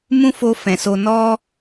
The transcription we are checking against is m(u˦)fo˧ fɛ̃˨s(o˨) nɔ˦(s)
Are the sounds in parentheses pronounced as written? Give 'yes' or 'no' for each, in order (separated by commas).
no, no, no